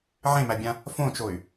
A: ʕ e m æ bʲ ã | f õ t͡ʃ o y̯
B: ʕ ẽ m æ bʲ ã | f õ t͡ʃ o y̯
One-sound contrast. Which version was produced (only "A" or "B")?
B